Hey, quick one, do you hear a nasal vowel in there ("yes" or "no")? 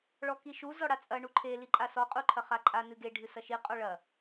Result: no